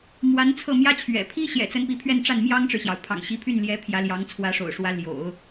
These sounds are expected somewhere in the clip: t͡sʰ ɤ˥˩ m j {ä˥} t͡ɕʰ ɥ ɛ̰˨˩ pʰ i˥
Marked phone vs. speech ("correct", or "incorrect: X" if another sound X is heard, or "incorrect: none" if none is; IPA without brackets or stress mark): correct